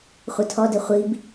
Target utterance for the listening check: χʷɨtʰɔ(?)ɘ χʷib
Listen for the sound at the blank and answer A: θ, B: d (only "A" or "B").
B